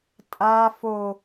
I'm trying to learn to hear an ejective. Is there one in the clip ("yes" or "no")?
yes